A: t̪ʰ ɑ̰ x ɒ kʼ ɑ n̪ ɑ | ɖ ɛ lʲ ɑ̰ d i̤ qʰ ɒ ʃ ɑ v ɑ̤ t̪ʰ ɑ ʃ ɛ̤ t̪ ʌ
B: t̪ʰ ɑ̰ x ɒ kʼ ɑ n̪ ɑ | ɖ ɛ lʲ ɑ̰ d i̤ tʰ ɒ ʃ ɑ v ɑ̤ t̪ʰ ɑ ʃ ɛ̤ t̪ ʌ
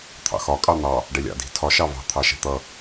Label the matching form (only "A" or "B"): B